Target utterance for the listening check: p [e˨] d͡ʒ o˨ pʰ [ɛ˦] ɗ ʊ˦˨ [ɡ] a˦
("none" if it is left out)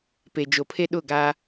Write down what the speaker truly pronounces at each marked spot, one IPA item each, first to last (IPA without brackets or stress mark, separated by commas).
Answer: e˨, e˦, ɡ